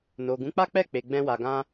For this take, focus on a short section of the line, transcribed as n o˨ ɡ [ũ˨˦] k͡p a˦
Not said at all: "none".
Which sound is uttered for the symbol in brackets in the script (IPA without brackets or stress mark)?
ũ˨˦